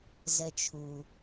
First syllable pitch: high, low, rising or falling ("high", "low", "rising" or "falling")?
low